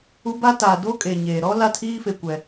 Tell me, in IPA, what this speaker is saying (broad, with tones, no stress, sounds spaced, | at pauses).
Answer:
u˦ b a˦ t aː˨ d o˦ kʼ eː˨ ɲ eː˨ ɾ ɔ˦ l a˦ tʰ iː˦ f e˦ kʷ ɛ˦